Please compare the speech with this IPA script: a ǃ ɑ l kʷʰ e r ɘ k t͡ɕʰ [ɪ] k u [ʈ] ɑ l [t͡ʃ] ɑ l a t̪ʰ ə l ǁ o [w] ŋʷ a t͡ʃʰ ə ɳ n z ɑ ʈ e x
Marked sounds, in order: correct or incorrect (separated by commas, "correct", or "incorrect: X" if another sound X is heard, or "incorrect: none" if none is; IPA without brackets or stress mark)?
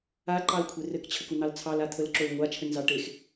incorrect: ə, incorrect: n̪, incorrect: t͡sʰ, correct